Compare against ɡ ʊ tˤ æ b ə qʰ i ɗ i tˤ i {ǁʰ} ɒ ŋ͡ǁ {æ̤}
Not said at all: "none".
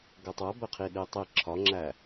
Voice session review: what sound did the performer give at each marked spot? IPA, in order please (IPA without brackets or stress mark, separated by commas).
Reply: ǁʰ, æ